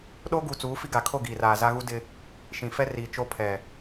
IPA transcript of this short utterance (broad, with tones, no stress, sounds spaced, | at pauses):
ɗ oː˦ ɡ uː˨ t͡s uː˨˦ f i˦ ɡ aː˨ kʰ o˦˨ ɡ iː˨ r aː˨ z a˦ ɣ u˦ d ɪ˦ | ʃ ĩ˨ f ɛ˦ r iː˨ t͡ʃ o˦ pʰ ɛ˨